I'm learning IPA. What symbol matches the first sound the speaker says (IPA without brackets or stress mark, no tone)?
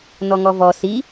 n